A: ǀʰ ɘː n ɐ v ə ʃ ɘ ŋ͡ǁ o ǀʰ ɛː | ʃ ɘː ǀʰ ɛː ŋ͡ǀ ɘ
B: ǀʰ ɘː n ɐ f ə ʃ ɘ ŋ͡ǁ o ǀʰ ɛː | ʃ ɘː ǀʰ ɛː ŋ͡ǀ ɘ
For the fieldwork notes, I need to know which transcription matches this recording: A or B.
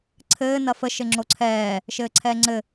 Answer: B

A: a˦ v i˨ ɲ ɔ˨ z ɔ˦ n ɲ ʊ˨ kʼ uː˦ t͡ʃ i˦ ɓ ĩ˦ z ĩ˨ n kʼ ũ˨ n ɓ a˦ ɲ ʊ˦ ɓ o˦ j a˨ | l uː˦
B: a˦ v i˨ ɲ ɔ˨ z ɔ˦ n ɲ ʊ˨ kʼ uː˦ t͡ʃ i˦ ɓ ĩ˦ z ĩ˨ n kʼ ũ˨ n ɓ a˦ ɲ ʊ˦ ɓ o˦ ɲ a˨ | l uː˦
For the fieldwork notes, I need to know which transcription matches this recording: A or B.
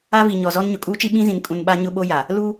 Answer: A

